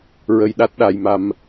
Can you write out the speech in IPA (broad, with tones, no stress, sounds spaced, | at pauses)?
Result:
ɹ ə˧ j ɗ a˦˥ t̚ ɗ a˧ j m a˧ m